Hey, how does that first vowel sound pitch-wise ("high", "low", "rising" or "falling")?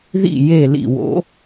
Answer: falling